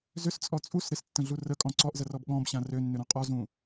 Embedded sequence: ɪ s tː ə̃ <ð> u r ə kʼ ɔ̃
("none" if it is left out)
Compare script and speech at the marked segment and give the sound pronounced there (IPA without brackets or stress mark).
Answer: ɮ